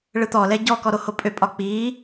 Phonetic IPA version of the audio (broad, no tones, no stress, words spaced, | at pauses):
ɭɯt̪ɔlɛ ɟɔkɔ ɾohopʼøpʼɒ k͡piː